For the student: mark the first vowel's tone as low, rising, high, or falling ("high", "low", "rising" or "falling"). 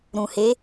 low